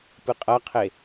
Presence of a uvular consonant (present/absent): present